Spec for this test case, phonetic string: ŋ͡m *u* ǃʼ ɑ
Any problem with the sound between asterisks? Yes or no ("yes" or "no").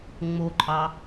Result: yes